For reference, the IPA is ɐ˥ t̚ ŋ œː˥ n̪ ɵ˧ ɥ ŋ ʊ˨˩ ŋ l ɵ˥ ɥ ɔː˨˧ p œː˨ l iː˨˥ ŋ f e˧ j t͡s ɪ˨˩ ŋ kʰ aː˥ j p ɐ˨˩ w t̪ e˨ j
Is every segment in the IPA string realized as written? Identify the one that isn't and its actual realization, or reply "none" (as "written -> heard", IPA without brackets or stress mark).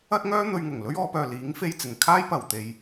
none